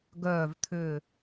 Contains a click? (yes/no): no